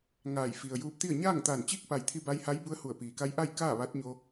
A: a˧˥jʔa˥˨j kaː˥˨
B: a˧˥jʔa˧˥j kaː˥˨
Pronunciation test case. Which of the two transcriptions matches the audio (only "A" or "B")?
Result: A